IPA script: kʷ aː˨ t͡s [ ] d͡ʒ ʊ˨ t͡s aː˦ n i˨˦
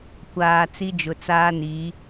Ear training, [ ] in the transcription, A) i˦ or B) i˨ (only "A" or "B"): A